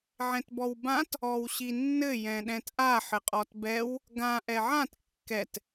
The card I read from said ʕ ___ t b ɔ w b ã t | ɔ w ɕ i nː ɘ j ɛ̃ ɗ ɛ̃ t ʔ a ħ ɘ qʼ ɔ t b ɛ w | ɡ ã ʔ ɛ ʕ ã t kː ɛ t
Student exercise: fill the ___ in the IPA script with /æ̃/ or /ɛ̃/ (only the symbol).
ɛ̃